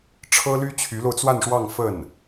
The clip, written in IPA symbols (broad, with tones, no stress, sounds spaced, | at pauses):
ʈ͡ʂʰ ɤ˥ l y˥ t͡ɕʰ y˧˥ l o˧ ʊ̯ t͡s w a˥˧ n ʂ w ɑ˥˧ ŋ f ə˥˩ n